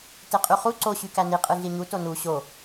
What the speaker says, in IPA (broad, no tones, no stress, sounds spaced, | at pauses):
t e qʼ y χ u ǀ o ɕ y k æ n i qʼ ɯ ɮ i ɲ u t o n u ɕ o